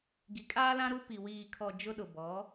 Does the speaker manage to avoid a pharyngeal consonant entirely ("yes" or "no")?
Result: yes